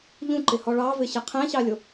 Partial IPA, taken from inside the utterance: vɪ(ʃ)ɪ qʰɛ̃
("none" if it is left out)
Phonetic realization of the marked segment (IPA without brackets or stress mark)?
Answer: ɕ